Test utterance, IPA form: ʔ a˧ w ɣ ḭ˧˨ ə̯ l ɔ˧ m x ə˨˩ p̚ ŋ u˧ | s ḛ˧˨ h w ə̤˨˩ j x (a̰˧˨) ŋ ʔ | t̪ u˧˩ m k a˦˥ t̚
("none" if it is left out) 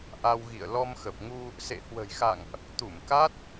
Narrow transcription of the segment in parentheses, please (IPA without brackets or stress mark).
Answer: a̰˧˨